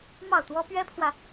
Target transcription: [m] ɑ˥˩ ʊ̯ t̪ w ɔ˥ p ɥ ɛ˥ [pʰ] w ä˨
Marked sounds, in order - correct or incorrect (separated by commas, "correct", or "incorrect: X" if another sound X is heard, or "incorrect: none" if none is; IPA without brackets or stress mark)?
correct, correct